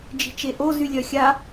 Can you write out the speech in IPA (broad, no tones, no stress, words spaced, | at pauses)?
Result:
d͡ʒi̤t͡ʃeʔo zylʲœxʲa